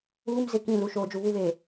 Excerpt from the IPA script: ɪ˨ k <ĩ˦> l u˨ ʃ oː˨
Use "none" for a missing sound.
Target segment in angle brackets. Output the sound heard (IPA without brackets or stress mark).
ĩ˦˨